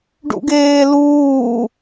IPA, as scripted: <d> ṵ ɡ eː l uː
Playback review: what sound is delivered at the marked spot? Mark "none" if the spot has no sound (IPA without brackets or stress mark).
ɖ